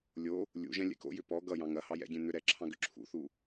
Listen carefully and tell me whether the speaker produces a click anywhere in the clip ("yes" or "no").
yes